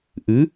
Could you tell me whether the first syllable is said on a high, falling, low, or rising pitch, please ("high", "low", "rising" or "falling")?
rising